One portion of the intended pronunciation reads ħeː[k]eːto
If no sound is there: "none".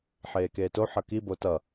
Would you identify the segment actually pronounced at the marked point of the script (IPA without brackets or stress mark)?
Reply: k